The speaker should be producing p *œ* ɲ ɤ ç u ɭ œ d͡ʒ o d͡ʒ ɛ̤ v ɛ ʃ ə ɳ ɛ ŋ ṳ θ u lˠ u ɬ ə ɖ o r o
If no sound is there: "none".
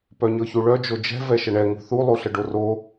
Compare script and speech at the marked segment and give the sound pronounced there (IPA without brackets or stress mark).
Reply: œ